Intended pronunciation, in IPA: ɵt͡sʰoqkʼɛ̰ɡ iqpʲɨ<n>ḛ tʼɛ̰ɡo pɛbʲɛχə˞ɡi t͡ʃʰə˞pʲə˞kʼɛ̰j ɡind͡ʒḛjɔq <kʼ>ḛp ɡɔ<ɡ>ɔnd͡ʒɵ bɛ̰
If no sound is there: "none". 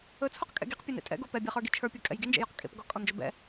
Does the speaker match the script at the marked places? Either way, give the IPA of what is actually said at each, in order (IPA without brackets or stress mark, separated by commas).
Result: n, kʼ, kʼ